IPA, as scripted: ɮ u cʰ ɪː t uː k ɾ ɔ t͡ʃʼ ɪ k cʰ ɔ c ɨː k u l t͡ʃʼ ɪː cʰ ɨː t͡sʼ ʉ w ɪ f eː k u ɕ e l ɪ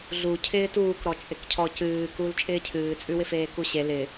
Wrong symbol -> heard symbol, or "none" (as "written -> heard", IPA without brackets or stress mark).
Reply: none